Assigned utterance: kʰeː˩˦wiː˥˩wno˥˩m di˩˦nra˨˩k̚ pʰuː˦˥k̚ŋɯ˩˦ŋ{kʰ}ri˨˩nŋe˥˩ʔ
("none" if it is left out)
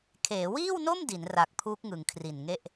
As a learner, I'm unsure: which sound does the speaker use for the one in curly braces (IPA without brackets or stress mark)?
kʰ